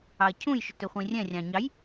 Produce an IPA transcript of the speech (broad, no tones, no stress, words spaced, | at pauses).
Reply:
ɑɐ̯cʰũjʃɵt ɵχʷĩrʲɛ̃rʲɑ̃ ɲɑj